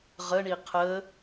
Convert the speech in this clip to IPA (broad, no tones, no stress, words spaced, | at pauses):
ʁəɳi qʰə